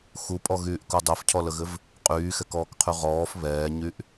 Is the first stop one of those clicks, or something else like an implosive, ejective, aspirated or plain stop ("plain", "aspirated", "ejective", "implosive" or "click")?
ejective